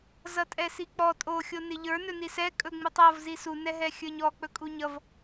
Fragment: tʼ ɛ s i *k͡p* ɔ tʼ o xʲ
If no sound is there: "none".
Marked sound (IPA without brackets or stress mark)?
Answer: k͡p